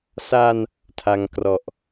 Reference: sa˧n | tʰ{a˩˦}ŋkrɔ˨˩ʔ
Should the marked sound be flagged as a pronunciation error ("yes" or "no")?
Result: yes